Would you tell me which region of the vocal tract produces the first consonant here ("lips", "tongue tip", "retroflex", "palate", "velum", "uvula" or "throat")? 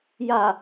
palate